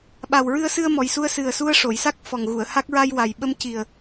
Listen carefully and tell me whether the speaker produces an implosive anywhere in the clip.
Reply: yes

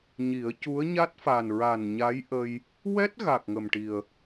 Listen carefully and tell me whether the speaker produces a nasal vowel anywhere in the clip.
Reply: no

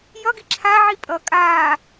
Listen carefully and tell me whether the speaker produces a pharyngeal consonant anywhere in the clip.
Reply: yes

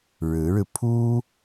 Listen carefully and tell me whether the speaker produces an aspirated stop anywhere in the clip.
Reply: yes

